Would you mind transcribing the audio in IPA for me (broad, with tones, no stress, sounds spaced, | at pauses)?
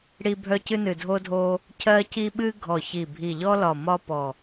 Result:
ɽ i˧ bʱ œ˧ c ɨ˧ n ɨ˨˩ dʱ o˧ dʱ o˧ | cʰ ɜ˧ c i˧ ɓ ɨ˧ ɡʱ ɔ˨˩ ç i˨˩ bʱ i˨˩ ʎ ɔ˧ l ɒ˨˩ m ɒ˧ p ɔ˨˩